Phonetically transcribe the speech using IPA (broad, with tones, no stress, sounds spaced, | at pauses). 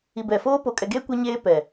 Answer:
i˨ b ɛ˨ f oː˦ p o˨ kʼ ɛ˨ ɡ eː˦ kʷ ɛ˦ ɲ eː˦ p ɛ˨